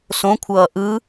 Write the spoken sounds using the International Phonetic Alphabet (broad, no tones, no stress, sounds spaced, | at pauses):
s õ kʷʰ ʌː ʔ ɯ